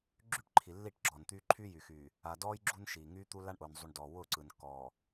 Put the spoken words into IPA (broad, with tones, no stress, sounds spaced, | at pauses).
ɡ͡ǁ y˦ ʈ ǃʰ i˨ lː i˦˨ ʈ ɡ͡ǁ ɔ˨ n t̪ yː˦ ǃʰ yː˦ j y˨ x yː˨ | a˨ d ɔː˦ j ɡ͡ǁ u˦ n ʃ iː˨ ŋ yː˦ t̪ u˦ l a˦ ɳ ʔ ʊː˨ n zˤ u˨ ɳ d ɔː˨ w ʊː˦˨ ǀ ɯ˨ n kː ɔː˨